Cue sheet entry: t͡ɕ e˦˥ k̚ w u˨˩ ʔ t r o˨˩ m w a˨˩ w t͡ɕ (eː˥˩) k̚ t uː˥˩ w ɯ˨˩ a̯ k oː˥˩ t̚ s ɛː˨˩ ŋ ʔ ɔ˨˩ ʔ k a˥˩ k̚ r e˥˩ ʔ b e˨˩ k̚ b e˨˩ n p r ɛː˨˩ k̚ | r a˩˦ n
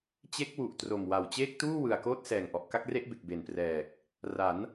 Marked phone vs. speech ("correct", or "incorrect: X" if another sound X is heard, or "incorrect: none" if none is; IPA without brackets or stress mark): correct